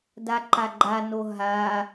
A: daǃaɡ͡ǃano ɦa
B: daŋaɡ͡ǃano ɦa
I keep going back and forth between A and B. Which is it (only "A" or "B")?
A